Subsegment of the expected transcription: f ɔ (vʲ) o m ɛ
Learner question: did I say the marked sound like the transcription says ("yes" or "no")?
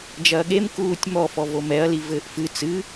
no